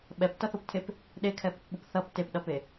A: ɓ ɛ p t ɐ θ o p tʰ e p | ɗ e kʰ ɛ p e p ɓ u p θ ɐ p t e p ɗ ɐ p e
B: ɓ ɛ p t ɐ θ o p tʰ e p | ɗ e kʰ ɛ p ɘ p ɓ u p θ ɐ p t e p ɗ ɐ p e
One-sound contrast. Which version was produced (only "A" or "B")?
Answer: B